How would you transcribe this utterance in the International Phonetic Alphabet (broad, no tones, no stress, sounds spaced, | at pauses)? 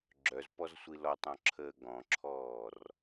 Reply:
ɡ͡ǁ œ z p ɔ z sʷ i l ɔ tˤ ɔ̃ ǁʰ əː ɡ ɔ̃ ǁʰ ɔː r